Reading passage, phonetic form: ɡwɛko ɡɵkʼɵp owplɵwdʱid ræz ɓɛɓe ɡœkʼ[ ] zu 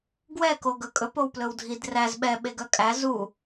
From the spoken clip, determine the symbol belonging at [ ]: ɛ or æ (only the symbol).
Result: æ